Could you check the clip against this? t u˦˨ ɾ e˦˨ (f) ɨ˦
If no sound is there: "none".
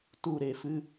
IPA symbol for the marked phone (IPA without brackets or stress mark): f